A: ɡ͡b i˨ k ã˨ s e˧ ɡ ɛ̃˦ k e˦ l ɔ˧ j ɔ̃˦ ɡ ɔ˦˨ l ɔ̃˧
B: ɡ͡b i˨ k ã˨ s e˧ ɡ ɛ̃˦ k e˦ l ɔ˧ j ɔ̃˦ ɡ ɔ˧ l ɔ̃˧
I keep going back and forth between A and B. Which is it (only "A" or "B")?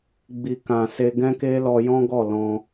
A